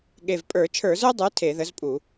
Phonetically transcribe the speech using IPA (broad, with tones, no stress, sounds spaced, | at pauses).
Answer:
ɠ e˨˩ v pʼ ə˞˧˩˧ t͡ʃʰ ə˞˧˩˧ z ə˞˥ dˤ ə˞˨˥ tʰ e˧˩˧ ð ə˨˥ z pʼ u˧˩˧